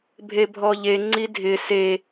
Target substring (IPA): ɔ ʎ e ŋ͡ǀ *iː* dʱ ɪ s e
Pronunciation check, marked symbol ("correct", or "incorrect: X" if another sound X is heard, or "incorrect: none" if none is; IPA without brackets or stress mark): incorrect: i